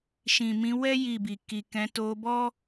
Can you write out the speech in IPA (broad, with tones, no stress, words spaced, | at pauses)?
ʃĩ˨mĩ˨˦ wɛ˦ ji˦˨bi˨ ki˨kɛ̃˨˦ to˧ bɔ˦